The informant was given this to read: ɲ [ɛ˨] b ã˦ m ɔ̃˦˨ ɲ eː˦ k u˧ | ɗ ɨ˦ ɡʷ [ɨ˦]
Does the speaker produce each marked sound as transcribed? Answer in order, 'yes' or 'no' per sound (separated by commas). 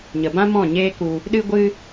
no, yes